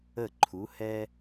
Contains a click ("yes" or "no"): yes